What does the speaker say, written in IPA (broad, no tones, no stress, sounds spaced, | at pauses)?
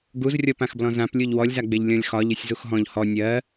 ɡ u z rʲ ɔ p ã x b l ɔ̃ z ã p lʲ u ʎ w ɔ lʲ z a ɡ͡b e ʎ lʲ ɔ̃ lʲ x ɒ ʎ ɘ sʲ z u x ɦ ɔ̃ ʎ h ɔ nʲ ɜ